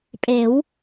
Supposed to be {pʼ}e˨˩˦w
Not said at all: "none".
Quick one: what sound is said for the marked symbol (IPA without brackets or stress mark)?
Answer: pʼ